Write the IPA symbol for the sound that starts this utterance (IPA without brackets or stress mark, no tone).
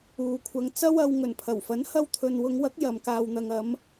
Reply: uː